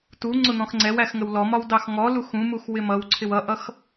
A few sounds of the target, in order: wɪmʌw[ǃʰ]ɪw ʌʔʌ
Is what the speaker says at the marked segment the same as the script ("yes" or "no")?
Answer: no